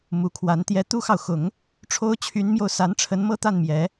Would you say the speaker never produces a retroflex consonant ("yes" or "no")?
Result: no